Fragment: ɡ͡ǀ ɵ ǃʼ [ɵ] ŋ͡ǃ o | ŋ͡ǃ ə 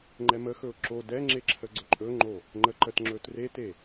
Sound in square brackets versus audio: correct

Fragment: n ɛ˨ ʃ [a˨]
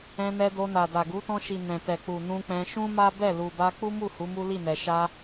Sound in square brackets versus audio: incorrect: a˧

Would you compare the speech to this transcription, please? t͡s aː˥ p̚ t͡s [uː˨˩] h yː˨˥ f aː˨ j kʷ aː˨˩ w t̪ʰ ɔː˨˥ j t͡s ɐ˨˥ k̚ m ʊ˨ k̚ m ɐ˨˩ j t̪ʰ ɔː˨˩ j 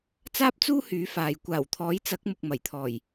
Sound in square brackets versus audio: incorrect: uː˥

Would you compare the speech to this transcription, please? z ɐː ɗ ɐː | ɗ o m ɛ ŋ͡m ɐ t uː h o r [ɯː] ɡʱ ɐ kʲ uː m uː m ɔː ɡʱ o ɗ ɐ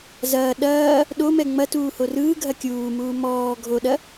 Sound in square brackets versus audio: correct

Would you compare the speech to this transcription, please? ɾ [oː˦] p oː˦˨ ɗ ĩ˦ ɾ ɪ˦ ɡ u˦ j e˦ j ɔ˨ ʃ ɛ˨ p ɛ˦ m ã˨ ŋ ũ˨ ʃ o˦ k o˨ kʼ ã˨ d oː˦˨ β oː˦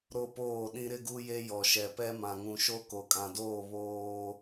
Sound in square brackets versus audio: incorrect: o˦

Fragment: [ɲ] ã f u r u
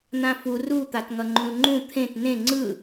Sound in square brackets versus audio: incorrect: n̪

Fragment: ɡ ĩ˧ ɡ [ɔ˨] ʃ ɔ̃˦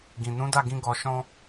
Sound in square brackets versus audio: incorrect: ɔ˧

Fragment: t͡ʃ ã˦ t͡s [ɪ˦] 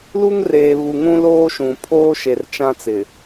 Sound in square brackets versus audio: incorrect: ɪ˨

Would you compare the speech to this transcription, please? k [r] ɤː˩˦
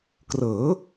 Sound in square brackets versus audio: correct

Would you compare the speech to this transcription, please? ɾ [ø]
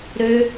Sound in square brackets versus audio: correct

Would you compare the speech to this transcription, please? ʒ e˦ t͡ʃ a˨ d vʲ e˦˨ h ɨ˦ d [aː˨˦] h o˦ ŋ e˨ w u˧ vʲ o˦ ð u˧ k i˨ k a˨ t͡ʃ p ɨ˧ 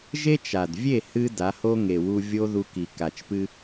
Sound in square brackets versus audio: incorrect: a˨˦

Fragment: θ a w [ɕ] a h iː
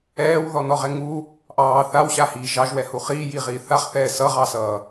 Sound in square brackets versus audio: correct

